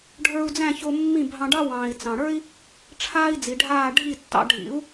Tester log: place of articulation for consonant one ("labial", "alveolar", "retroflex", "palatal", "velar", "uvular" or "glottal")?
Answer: retroflex